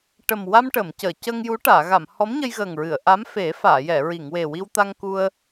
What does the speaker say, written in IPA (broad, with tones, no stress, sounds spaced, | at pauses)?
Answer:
ʈ ə˨˩ m w a˧ m ʈ ə˨˩˨ m c əː˨˩˨ c əː˧ ŋ j u˧˥ ʈ aː˨˩˨ ɣ a˨˩˨ m h ɔ˧˥ m ɲ ə˧ j ɣ əː˨˩ ŋ ɹ ɨ˨˩˨ ə̯ ʔ a˧˥ m f e˨˩˦ f aː˨˩˨ j ɛ˨˩˨ ɹ i˨˩˨ ŋ w e˨˩ w i˧ w t̪ a˧ ŋ k u˧ ə̯